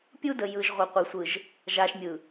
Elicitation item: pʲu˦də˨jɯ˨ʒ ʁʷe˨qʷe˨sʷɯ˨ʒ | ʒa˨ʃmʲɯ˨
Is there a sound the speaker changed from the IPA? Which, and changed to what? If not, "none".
none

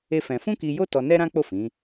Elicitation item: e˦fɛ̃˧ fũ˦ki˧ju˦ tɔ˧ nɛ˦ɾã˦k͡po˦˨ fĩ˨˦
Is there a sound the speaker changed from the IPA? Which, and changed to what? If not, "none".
u˦ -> o˦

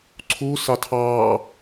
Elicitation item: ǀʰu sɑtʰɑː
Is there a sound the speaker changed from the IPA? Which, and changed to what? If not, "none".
none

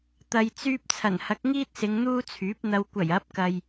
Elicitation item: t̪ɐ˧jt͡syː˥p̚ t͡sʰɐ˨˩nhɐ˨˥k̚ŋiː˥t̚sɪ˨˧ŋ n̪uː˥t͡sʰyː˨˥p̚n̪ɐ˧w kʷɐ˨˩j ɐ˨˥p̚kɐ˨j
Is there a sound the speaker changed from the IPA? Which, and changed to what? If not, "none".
none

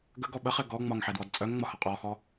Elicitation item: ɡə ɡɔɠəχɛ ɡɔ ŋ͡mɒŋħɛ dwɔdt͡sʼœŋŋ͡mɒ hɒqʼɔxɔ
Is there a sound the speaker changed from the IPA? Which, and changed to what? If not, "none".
ɠ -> ɓ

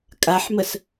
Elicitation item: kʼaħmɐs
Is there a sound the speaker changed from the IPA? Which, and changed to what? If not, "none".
ɐ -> ə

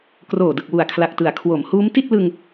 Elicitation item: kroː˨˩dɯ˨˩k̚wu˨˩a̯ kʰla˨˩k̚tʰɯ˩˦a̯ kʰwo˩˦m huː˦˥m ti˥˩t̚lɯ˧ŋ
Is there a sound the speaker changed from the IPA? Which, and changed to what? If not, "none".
tʰ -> t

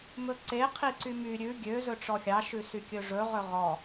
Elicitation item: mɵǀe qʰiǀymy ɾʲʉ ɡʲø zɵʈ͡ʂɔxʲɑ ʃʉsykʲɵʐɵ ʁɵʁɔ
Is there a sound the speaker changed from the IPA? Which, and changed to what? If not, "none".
none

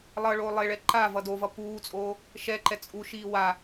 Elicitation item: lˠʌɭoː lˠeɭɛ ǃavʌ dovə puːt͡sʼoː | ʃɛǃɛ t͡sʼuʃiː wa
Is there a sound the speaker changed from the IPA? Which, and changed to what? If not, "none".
ə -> ʌ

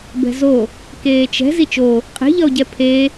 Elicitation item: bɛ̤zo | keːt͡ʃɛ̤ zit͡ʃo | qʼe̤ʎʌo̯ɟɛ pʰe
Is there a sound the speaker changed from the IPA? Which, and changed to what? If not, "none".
none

